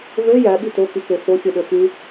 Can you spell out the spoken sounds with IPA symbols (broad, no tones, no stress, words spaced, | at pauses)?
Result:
vø jæɓi tokike foxʲɯɗø fy